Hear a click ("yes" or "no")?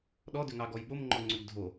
yes